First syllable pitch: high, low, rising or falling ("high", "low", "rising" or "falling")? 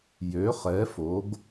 rising